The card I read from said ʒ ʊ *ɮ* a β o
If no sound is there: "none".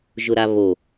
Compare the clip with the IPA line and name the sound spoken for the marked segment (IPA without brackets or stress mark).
ɾ